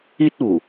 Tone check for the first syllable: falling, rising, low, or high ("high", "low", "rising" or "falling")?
high